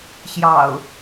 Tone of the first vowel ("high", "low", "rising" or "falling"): low